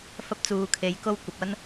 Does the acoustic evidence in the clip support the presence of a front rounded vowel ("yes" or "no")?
no